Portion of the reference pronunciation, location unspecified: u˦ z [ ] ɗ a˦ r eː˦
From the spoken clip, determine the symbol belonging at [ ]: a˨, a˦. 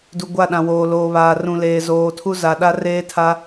a˨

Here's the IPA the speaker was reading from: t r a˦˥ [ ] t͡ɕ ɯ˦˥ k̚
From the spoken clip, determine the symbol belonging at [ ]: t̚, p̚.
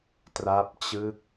p̚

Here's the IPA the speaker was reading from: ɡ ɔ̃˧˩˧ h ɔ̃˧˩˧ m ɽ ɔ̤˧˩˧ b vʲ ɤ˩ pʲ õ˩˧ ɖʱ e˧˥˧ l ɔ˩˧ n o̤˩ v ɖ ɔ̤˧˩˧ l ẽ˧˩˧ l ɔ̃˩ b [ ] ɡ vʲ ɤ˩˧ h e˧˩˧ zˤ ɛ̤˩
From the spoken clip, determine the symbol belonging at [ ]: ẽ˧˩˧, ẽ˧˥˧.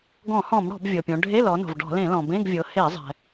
ẽ˧˥˧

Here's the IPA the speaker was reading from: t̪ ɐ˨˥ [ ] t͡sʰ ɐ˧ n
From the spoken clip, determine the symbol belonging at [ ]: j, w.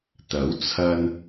w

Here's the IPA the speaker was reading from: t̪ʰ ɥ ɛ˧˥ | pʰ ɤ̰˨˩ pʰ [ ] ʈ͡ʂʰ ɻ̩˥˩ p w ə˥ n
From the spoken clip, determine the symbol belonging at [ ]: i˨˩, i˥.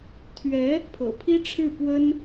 i˥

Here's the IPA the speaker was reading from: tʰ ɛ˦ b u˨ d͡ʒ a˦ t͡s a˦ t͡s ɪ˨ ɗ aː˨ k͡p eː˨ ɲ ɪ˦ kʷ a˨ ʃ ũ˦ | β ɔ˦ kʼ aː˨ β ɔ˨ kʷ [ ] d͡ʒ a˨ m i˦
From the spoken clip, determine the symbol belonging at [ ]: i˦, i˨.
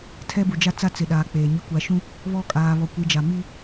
i˨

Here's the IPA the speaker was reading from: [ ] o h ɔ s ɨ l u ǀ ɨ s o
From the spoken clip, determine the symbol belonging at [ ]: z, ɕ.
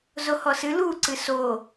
z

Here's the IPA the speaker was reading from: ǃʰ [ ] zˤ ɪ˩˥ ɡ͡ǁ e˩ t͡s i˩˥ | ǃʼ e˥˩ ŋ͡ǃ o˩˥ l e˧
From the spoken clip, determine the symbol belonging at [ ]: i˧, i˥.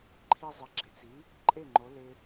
i˧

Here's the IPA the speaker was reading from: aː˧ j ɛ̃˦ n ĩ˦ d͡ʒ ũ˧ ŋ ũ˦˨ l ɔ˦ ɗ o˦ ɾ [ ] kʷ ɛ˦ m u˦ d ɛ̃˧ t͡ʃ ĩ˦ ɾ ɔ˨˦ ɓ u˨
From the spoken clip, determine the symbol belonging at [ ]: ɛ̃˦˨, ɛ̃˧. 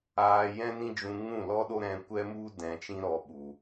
ɛ̃˧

